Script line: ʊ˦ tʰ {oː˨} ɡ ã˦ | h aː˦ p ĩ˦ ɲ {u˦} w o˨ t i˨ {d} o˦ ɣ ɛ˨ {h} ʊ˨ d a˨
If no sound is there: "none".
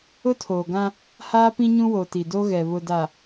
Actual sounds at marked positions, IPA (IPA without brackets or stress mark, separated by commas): oː˨, ũ˦, d, β